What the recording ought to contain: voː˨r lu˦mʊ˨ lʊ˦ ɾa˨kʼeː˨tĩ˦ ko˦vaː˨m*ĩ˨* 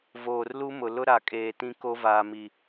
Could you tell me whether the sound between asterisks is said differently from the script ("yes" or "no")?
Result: yes